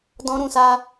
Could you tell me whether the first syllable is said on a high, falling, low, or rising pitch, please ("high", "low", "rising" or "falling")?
high